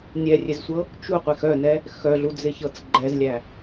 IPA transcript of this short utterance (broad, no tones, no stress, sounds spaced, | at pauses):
nʲ ɛ rʲ e z sʷ ɤ | t͡ʃ u qʷ e x œ n ɛ | x œ ɮ u d͡z ɪ ç ɤ t͡s ɡ͡ǃ ɛ z lʲ æ